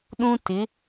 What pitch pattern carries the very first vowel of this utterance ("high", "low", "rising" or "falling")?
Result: high